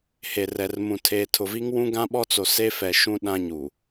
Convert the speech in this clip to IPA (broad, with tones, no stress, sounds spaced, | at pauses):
h e˨ r ɛ˨ r m ũ˨ tʰ eː˨ tʰ ʊ˨ v i˦ ŋ w ũ˦ ɡ ã˦ ɓ ɔ˦ t͡s o˨ s e˦ f ɛ˨ ʃ ũ˦ ɗ ã˦ ɲ u˨